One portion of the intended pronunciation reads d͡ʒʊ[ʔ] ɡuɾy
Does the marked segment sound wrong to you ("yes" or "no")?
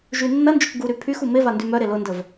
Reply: yes